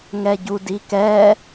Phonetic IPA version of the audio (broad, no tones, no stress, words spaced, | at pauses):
ŋɛɟudikɛ